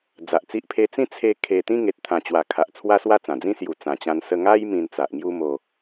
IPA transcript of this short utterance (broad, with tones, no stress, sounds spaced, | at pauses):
d͡z a˨ ʔ t͡s i˦ ʔ pʰ e˧ t͡s ĩ˦ t͡sʰ e˥˧ kʰ e˧ t̪ ĩ˦ ŋ e˨ t̚ t̪ʰ ã˨˩ t͡ɕ w a˨˩ kʰ a˨ ʔ t͡sʰ w a˦ s w a˥˧ t͡s ã˨˩ d͡z ĩ˦ s j u˨˩ t͡s ã˨˩ t͡ɕ ã˧ n s ə˧ ŋ a˦ j m ĩ˧ n t͡s a˨ ʔ ŋ j u˦ m o˧